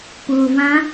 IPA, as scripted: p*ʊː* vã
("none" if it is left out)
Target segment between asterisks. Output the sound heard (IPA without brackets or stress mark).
ʊː